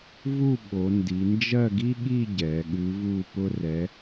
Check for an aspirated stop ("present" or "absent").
absent